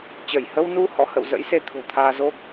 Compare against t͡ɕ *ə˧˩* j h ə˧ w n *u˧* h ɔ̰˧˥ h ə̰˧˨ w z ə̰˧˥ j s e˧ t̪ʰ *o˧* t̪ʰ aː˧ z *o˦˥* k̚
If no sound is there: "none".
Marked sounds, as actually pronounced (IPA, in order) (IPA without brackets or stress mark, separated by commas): ə˧˩, u˧, o̤˨˩, o˦˥